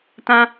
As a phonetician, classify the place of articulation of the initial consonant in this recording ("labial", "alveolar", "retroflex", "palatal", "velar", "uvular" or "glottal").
alveolar